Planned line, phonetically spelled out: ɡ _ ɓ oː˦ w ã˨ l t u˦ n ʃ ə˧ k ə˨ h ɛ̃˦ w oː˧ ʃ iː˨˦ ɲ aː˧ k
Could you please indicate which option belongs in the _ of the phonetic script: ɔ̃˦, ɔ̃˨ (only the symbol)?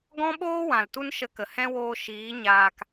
ɔ̃˦